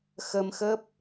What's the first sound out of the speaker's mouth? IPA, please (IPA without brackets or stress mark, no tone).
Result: x